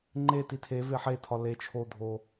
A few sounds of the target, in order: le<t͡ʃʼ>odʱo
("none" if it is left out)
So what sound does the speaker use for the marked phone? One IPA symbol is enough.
t͡ʃʰ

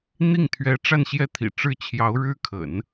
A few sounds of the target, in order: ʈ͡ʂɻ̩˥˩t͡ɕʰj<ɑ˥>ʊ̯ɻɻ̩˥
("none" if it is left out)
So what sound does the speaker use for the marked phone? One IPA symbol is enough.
ɑ˧˥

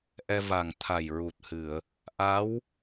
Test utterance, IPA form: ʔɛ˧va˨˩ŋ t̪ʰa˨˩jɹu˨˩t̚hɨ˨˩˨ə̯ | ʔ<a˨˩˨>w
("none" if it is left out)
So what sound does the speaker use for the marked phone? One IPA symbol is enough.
a˧˥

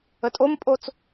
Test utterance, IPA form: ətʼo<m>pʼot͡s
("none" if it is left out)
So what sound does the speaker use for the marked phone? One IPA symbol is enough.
m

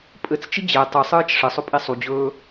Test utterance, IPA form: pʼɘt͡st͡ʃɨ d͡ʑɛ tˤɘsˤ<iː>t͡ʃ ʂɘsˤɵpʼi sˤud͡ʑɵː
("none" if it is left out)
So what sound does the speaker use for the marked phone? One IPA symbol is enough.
ɨː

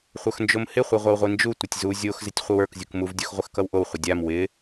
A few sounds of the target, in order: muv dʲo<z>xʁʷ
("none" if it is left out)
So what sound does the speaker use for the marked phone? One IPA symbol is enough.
none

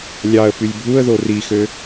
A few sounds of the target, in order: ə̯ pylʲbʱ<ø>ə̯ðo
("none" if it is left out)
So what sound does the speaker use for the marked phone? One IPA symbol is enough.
u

